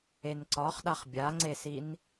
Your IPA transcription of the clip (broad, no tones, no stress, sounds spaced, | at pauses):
e n ǀ ɒ χ ɗ a χ bʲ a ŋ͡ǀ e s i n